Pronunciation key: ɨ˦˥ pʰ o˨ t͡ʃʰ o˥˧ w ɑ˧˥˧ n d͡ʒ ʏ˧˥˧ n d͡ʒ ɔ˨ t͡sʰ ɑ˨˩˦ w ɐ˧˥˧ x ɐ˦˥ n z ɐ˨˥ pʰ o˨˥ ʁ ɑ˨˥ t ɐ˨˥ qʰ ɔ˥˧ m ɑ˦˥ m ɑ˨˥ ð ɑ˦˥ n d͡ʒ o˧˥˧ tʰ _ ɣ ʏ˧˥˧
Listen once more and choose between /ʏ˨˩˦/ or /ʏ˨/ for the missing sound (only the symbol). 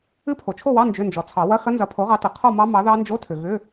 ʏ˨